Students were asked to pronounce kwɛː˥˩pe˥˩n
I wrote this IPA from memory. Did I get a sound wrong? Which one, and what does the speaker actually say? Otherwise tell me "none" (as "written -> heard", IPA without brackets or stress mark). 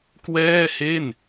p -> h